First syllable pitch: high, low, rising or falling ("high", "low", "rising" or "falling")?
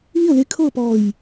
falling